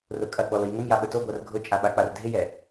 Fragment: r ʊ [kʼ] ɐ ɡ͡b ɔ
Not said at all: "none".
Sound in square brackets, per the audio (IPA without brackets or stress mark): kʼ